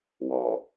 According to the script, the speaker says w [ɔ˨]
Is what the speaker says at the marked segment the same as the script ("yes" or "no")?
yes